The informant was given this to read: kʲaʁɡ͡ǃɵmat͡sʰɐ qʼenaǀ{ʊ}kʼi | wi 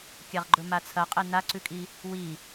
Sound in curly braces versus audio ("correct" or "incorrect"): incorrect